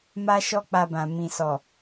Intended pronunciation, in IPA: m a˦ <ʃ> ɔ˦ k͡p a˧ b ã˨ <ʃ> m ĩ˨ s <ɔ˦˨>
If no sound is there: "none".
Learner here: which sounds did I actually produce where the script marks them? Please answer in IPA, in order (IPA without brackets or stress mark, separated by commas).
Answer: ʃ, none, ɔ˨